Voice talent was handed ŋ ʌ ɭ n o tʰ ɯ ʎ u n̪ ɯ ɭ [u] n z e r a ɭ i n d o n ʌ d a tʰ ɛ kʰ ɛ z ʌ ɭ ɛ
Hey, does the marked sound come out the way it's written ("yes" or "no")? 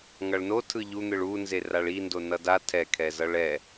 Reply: yes